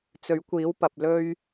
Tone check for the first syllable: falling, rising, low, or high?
rising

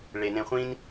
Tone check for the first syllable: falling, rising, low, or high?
low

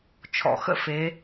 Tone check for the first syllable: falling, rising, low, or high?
low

